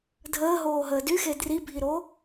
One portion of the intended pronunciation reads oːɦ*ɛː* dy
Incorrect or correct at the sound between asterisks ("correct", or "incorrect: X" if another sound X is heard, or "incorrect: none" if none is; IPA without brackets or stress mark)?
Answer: incorrect: əː